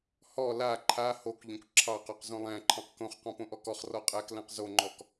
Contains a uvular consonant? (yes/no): yes